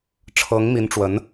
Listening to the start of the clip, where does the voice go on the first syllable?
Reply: rising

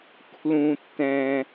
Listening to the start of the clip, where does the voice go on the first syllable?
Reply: low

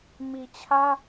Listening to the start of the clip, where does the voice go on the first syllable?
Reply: low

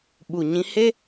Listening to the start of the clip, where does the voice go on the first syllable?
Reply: low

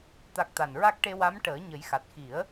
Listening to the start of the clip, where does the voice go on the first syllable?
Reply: low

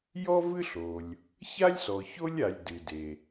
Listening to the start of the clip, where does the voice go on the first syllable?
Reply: high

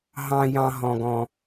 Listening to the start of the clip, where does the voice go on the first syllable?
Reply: high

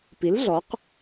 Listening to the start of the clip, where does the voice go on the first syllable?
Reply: rising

